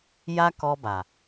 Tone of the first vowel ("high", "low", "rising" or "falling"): high